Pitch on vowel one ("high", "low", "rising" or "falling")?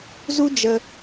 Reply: high